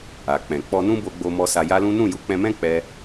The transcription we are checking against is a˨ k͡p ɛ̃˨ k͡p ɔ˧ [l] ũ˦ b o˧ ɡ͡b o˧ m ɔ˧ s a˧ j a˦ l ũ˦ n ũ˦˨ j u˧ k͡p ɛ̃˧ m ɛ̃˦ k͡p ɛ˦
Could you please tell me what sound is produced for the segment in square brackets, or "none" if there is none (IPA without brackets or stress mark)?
n